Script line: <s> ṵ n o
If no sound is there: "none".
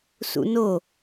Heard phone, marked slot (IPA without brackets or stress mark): s